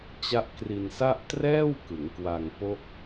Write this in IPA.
t͡ɕa˦˥ʔkri˧nsa˥˩ʔ trɛː˥˩wkɯ˩˦ŋkwa˧ŋ po˥˩k̚

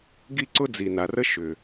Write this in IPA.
ɡi˥ ǀʊ˥d͡zi˩na˩rə˥ ʃʏ˩

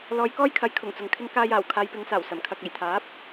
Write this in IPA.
lɔː˨˧jkɔː˥jkʰɐ˨˥j kʰʊ˨˩ŋt͡sʊ˨ŋ kʰɪ˥ŋ kaː˧jaː˨˩w kʰaː˧jpɪ˨˧ŋsaː˨˩wsɐ˨˩m kʰɐ˨k̚e˨˩jt̪ʰaː˨˥p̚

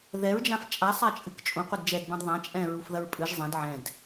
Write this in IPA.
ðɛɹd͡ʒãf t͡ʃʼasˤat͡ʃʼɨk t͡ʃʼũqʷɨd d͡ʒɛdbãd ðˤã t͡ʃʼɛ̃ɹufðɐɹ pʼɨʒ zˤɛ̃d ʕɛ̃d

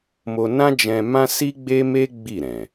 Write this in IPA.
mo˧ nã˦d͡ʒɛ̃˧mã˦ si˦ɡ͡be˦me˦ ɡ͡bi˦˨ɾɛ̃˨

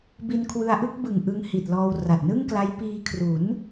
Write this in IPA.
bi˧nkʰwɯ˧a̯ʔɯ˥˩k̚ bɯ˨˩ŋʔɯ˧ŋ hi˨˩t̚lɔː˧w ra˨˩t̚nɯ˥˩ŋkla˦˥j piː˧kʰru˩˦n

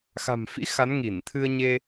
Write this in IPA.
xa̤˨˩mfḭ˧˥ xa˨˦nŋi˧˩nt̪ʰɨ˧ə̯ɲe˧

